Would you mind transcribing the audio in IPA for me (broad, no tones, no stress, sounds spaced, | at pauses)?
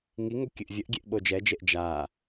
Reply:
ŋ i ŋ o kʲ ɨ ʔ vʲ ə ʔ ɡʲ e ʔ ɓ o d͡ʒ ɛ d͡ʒ e ʔ d͡ʒ a